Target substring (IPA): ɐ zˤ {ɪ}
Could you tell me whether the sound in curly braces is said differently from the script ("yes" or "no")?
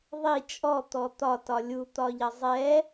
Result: yes